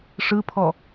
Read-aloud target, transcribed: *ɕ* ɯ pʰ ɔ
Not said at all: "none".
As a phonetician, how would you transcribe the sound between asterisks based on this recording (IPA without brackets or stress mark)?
ʂ